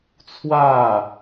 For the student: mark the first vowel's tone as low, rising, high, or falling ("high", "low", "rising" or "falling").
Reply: falling